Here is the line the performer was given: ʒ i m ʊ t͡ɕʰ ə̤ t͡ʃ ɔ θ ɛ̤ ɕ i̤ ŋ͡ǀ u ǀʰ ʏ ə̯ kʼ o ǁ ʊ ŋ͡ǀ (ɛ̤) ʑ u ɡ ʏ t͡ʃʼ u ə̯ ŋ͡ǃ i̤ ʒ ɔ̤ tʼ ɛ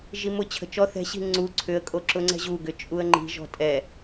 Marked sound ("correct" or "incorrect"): correct